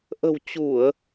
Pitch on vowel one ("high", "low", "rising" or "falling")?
low